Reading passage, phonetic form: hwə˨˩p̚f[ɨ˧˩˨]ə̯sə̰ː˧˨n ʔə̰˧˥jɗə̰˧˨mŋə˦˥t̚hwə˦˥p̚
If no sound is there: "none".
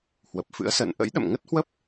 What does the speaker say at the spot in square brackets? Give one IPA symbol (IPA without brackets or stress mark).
ɨ̰˧˥